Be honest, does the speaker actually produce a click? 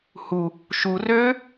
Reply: no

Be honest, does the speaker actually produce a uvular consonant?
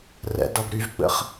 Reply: yes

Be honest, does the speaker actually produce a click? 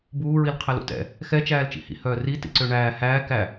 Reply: yes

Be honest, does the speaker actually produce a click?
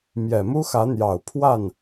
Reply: no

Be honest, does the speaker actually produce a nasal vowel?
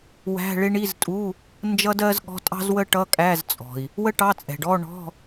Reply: no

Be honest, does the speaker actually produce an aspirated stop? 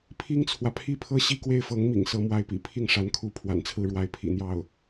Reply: yes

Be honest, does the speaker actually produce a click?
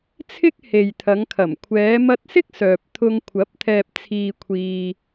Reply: no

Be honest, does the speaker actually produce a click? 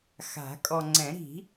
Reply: yes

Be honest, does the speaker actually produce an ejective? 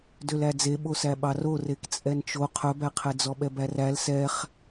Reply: yes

